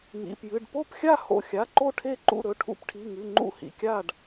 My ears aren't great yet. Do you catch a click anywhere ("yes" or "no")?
yes